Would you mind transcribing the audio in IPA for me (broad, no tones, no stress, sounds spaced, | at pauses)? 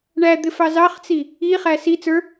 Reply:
ɳ æ d̪ ɪ f ɑ z ɑ χ t͡s i | i χ æ s i t͡s ə˞